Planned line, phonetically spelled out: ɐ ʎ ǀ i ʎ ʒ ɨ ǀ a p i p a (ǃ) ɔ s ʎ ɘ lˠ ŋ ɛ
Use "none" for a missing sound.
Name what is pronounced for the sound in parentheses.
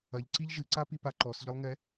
ǃ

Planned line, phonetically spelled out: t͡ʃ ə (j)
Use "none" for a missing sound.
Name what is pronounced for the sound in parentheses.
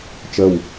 w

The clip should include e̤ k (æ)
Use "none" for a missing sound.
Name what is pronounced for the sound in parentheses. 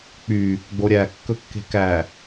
æ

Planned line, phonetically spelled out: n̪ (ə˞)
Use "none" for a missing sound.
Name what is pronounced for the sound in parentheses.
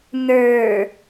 ə˞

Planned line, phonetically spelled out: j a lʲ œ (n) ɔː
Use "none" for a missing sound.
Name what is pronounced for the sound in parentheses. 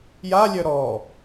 ɾ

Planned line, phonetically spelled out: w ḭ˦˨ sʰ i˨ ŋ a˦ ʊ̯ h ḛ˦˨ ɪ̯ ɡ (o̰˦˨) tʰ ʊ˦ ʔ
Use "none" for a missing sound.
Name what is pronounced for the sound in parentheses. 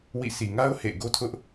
o˦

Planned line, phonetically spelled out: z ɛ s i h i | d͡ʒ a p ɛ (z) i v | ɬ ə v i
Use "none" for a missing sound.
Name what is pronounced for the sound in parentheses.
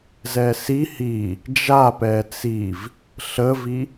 t͡s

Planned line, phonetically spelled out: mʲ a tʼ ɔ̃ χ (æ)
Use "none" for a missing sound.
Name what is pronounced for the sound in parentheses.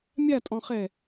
ɛ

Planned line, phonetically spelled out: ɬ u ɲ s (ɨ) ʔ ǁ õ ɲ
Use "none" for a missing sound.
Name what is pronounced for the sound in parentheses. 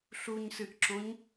ɨ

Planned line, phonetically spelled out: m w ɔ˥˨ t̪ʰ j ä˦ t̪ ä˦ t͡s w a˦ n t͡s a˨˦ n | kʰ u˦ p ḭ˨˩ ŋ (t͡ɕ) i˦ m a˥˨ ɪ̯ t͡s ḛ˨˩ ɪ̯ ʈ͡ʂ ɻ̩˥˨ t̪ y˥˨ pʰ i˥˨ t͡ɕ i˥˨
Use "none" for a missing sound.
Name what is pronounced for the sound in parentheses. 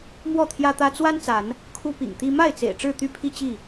t̪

